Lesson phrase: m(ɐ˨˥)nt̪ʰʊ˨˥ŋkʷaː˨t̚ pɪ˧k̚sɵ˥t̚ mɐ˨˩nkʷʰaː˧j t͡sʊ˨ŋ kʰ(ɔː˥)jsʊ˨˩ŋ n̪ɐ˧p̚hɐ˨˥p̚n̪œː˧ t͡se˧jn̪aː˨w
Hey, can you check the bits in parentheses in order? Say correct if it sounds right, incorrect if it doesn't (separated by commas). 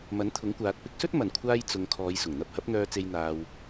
correct, incorrect